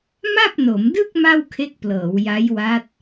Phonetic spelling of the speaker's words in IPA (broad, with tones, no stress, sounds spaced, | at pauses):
m a˥˩ p̚ n o˩˦ m d ɯ˥˩ k̚ m a˥˩ w kʰ e˦˥ k̚ p l ɤː˩˦ w j a˦˥ j w a˦˥ t̚